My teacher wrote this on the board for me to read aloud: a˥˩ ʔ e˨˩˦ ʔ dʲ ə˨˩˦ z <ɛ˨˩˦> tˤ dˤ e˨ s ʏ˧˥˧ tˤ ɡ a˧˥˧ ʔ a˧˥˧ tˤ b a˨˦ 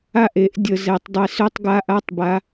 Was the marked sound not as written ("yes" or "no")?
no